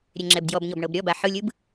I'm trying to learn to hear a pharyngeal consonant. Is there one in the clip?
yes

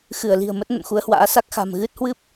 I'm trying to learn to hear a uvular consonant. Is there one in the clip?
no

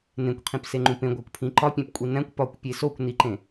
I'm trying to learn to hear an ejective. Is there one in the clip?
yes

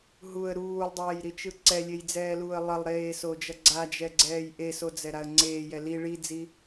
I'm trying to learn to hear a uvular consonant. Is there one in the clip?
no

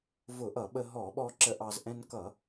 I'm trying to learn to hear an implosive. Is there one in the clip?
yes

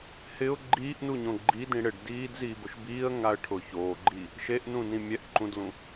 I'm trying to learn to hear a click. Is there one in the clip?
yes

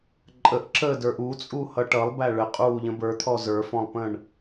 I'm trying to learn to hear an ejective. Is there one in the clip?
yes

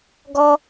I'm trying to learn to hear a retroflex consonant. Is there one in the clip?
no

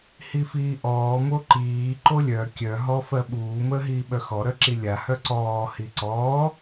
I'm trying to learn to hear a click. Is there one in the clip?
yes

